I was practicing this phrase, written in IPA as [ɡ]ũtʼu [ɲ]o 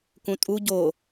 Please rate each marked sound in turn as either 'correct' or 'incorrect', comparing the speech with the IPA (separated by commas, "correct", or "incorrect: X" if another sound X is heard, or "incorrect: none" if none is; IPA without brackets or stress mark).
incorrect: k, incorrect: ɟ